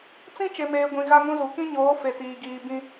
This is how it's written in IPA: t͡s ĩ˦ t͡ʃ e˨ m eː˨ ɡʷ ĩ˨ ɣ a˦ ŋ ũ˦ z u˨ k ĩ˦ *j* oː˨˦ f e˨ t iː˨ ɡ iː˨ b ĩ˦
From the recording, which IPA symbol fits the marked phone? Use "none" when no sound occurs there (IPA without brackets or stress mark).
ɲ